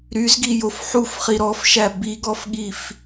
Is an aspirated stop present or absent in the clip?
absent